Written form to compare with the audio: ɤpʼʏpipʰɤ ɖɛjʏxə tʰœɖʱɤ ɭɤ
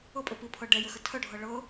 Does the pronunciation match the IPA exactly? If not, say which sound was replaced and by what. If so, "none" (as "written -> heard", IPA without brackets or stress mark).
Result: none